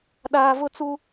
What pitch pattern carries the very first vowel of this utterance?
low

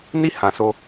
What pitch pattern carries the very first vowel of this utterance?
high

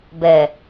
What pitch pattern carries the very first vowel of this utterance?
low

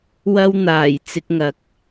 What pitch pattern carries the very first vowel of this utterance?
high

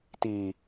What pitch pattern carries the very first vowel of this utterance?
low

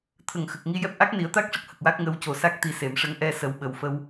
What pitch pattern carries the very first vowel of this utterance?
low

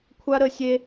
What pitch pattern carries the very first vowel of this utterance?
high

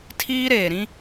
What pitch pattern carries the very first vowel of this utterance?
high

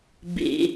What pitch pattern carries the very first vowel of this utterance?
high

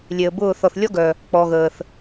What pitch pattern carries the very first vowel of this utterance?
low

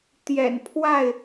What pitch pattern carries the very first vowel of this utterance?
low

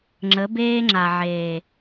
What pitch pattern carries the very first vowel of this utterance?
rising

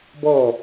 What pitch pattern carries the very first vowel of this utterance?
falling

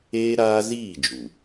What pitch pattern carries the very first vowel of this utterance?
high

